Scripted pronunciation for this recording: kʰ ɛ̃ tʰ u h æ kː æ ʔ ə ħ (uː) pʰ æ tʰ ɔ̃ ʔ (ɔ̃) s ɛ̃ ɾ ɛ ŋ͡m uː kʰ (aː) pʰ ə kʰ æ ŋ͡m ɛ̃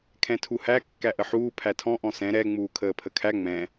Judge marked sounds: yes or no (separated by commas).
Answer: yes, yes, no